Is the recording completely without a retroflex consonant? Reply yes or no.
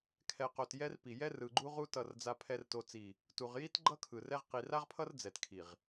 yes